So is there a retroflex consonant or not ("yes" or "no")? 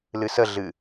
no